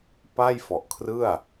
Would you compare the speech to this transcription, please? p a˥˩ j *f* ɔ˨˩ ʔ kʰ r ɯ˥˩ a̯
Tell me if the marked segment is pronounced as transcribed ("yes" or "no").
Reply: yes